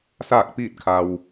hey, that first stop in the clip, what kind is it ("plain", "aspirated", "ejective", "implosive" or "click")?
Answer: plain